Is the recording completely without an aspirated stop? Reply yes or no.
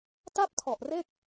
no